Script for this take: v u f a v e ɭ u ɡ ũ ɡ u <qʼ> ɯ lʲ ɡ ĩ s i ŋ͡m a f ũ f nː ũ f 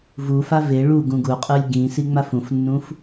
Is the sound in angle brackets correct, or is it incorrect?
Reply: correct